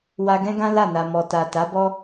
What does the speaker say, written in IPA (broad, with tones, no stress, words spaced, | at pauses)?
wa˧ɡɛ̃˦ɡã˦la˦˨ na˨ mɔ˨ta˨ ta˨˦bɔ˦